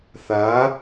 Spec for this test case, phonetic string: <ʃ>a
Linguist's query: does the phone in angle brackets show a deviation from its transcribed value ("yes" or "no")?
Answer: yes